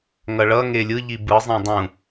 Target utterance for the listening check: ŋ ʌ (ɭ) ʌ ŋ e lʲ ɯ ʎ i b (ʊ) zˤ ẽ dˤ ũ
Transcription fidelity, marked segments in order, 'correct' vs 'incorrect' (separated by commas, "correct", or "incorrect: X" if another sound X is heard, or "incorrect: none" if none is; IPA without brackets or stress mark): correct, incorrect: ɯ